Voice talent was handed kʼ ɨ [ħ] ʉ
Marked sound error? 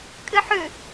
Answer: no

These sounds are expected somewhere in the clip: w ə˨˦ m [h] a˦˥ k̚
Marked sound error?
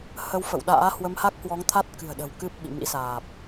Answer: no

